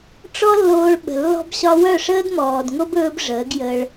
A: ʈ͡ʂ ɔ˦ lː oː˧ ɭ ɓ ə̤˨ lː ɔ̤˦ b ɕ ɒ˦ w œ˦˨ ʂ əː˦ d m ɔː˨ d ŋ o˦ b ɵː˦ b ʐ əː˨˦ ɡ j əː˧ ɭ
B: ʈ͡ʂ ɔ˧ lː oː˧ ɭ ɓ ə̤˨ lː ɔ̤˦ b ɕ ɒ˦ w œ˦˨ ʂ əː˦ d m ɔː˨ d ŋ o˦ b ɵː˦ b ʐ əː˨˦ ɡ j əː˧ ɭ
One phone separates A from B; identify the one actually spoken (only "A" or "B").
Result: A